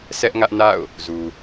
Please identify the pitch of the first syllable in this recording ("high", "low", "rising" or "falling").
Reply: high